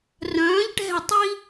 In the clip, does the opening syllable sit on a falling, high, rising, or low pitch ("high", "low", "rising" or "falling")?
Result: rising